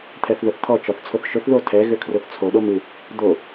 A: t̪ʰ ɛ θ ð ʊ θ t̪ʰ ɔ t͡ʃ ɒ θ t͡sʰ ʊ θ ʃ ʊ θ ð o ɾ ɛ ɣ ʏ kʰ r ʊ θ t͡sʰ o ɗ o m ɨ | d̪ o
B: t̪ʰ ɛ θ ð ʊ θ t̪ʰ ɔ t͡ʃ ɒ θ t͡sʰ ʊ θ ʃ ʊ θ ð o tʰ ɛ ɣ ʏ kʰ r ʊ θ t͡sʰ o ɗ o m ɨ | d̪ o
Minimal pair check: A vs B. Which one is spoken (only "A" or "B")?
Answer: B